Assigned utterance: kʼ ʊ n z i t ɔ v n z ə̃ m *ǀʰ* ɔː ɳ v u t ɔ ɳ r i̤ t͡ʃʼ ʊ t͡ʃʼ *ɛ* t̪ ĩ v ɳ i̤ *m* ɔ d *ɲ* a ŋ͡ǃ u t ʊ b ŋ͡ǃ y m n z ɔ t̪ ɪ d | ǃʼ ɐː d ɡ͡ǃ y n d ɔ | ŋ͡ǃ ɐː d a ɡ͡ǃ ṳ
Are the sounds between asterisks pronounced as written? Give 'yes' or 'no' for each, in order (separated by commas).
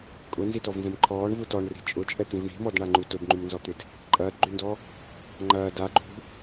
no, yes, yes, no